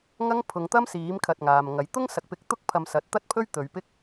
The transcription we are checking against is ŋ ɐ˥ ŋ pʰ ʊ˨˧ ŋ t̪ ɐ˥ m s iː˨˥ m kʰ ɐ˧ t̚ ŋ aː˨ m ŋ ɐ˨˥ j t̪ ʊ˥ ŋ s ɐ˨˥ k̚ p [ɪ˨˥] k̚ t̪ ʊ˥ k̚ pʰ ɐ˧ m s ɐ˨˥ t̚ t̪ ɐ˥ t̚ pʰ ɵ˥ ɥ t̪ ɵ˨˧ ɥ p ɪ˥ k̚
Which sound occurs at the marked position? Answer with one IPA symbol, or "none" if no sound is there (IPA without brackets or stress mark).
ɪ˨˥